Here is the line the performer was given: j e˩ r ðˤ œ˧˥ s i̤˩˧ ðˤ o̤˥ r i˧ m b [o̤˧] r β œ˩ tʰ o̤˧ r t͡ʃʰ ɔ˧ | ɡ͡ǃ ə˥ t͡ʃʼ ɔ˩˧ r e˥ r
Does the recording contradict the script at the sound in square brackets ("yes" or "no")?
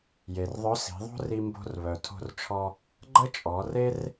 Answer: no